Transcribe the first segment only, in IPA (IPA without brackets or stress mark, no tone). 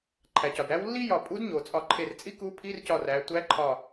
ǃʰ